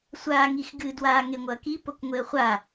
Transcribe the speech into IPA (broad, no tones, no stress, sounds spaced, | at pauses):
sʷ aː ŋ i x ɡ ɨ d w aː ŋ e ŋʷ ɐː k i p o k ŋʷ e ə̯ χʷ a